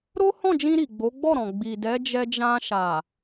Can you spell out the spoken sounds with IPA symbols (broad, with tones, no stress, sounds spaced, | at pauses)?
ɾ o˦ h ɔ̃˦˨ d͡ʒ ĩ˧ ɾ i˨ ɡ͡b o˨˦ ɡ͡b ɔ˦˨ ɾ ɔ̃˨ ɡ͡b i˨ d ɛ˨˦ d͡ʒ ɛ˧ d͡ʒ ã˧ ʃ a˨